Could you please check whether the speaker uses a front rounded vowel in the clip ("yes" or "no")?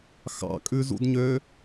yes